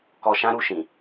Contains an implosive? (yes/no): no